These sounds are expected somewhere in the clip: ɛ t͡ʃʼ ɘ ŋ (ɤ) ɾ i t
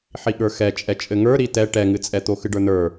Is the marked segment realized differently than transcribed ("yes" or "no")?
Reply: yes